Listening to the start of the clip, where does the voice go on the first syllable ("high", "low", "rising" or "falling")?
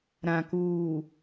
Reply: low